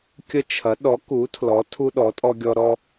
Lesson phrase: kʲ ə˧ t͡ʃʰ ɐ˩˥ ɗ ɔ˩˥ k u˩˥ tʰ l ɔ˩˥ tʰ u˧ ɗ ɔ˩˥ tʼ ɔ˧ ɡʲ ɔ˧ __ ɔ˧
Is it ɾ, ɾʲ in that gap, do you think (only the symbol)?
ɾ